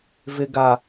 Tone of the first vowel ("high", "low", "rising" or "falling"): high